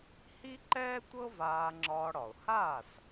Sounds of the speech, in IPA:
h i˥ ǃ ɛː˥ tʷ ɤ˥ v aː˧ ŋ͡ǁ ɒː˧ ɽ ɒ˩ ʊ̯ h aː˥˩ s

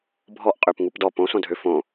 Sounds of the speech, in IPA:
bʱ ɔ ʔ qʼ ø p ŋ u p d ɔ p õ s õ dʱ ø f õ

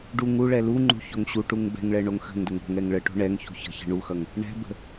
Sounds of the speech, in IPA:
ɖ u ŋ u ɭ ɛ l u ŋ͡ǃ ṳ ç o ŋ ɕ u ʈ u ŋ b ɛ̤ ŋ ɭ ɛ ɳ o ŋ x ə̤ ŋ d ə ŋ o̤ ŋ ɛ ŋ ɭ ə ʈ o̤ ɳ ɛ ŋ ç o̤ ç ə̤ ç ə̤ ɳ u x ʌ ŋ | ɳ ɛ̤ b ə̤

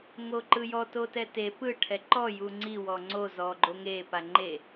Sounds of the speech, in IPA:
ŋ o ǃ ɯ j ɔ t o t ɛ t e p ɯ ʈʰ ɛ ǃ ɔ j u ŋ͡ǀ i w ɔ ŋ͡ǀ o z ɔ ɡ͡ǃ o ŋ e p a ŋ͡ǃ e

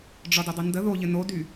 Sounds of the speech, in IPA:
ɖ͡ʐ ɒ d ɘ dˤ ɛ n d ə ð o ʎ ɘ n o d y

